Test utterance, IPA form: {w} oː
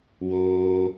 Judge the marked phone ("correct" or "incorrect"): correct